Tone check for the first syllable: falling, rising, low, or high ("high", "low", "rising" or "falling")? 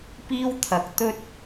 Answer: high